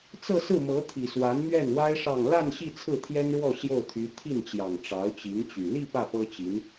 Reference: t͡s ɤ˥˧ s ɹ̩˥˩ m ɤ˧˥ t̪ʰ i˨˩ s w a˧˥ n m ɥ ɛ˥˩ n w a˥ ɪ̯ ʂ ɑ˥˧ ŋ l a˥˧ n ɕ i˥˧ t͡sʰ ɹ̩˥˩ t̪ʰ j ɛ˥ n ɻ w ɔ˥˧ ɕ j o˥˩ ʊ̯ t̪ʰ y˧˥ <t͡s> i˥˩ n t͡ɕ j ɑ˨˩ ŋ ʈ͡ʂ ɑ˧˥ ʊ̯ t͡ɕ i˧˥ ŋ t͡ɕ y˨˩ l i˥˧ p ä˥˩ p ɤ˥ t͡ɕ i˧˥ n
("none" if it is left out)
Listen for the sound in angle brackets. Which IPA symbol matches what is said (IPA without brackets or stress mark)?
t̪ʰ